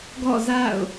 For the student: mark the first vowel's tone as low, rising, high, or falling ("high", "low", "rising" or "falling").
falling